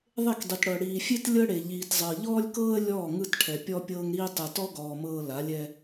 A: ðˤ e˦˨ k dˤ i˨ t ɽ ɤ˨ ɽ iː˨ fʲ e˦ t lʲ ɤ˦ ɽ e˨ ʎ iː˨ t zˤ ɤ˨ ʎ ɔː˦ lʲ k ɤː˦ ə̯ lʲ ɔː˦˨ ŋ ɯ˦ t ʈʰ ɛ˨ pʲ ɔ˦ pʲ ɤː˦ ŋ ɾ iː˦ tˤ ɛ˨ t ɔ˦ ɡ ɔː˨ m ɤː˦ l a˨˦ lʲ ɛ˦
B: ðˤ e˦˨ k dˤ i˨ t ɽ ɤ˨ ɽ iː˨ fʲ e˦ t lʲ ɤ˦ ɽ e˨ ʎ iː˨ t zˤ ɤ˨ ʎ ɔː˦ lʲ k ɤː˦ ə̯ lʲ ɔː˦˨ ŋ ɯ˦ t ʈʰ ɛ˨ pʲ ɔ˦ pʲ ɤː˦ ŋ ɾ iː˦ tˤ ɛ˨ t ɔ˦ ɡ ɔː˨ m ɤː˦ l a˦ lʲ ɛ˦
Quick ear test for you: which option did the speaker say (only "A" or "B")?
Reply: A